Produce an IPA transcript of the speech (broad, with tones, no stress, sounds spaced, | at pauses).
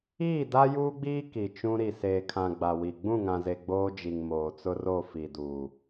iː˦˨ d a˦ j uː˦ ɡ͡b iː˦ k i˨ t͡ʃ ũ˦ ɾ i˨ s eː˨ kʰ ã˨ ɡ͡b a˨ w i˨ ɡ͡b ũ˦˨ ŋ ã˨ z e˨ ɡ͡b oː˦ d͡ʒ i˨ ŋ m oː˨ t͡s ʊ˦ r o˦˨ f i˨ d uː˨